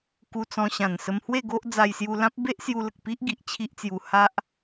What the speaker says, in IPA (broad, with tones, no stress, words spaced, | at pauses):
ku˧t͡sɔ̃˧ ɕã˨˩nsə˧mhwe˥˧ɡo˦ʔ d͡za˧jsju˧lã˦p̚ be˦ʔsju˧lə˨k̚ pi˦ʔɡi˨ʔ t͡ɕʰi˦ʔt͡sju˧ ha˦ʔ